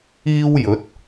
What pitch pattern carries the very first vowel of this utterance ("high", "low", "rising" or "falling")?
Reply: high